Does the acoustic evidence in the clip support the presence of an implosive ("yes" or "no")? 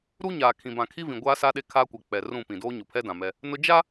yes